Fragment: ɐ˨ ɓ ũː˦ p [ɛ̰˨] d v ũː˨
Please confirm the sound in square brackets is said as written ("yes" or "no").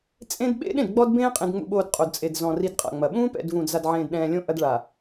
yes